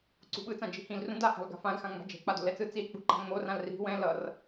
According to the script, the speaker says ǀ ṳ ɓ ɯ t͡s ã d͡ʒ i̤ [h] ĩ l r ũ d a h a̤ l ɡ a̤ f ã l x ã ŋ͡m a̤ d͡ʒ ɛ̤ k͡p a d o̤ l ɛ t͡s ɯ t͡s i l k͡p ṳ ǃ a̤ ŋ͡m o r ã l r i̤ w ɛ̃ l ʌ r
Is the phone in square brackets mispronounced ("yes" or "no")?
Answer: no